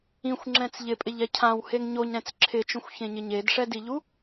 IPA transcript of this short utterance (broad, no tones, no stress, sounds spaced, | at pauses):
ĩ xʷ ŋ͡ǁ ɛ̃ t͡s ʎ ɪ pʼ ɪ ʎ ɛ cʰ ã w h e ŋ ɲ o ɲ ɾ ɛ̃ t͡s ǁʰ ɪ t͡ʃ õ xʷ ç ẽ ɲ ɪ ɲ e d ʂ ɛ d i ʎ u